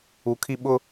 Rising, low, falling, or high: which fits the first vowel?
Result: low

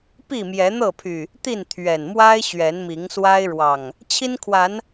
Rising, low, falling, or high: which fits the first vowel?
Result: falling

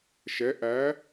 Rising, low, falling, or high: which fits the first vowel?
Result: rising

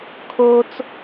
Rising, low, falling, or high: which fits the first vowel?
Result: high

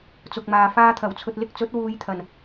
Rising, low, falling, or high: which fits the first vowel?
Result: low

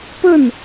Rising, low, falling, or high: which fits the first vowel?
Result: falling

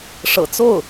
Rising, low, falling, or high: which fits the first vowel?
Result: low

